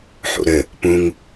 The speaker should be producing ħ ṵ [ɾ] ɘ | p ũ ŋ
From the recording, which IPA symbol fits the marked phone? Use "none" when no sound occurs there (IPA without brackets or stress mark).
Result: ɾ